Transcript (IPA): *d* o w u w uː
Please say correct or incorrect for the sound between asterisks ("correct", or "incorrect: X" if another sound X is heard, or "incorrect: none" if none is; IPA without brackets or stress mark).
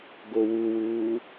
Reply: incorrect: ɡ